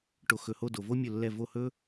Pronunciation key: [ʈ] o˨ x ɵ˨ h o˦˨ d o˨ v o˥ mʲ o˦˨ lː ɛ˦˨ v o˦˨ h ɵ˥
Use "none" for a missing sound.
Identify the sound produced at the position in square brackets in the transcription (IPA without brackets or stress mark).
ʈ